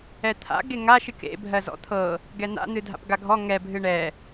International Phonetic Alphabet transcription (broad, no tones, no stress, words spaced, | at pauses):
ɛt̪ʰa̰ ɡeŋaʃ ɨkḛ bʱɜzɔ̰t̪ʰɤ | ɡɛn̪a̰ n̪ɨdʱa̰pɡaɡʱɔ ŋɛ bʱɨɳɛ